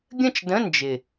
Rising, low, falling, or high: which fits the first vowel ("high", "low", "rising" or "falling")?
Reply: falling